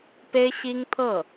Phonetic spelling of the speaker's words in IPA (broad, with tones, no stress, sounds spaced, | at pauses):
p e˥ ɪ̯ ɕ i˥ ŋ t̪ʰ ɤ˥˩